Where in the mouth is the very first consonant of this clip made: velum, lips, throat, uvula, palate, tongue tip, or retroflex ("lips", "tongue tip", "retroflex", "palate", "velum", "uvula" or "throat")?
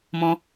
lips